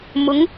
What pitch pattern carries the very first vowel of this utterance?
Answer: rising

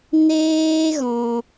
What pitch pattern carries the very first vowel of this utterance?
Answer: high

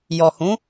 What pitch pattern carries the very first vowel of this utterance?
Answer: low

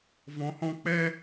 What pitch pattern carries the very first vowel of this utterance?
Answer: low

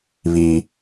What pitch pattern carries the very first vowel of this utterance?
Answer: high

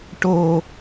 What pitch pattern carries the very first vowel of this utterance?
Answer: low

